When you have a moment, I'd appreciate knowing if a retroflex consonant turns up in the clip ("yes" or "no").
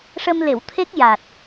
yes